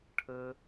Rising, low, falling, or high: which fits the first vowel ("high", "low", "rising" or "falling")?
high